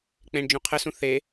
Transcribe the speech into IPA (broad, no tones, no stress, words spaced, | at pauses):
k͡pẽɳ d͡ʒũqʰɘsũ θe